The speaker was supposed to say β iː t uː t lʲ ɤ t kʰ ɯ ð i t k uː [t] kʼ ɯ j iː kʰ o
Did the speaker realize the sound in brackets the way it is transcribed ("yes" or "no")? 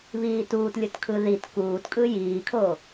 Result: yes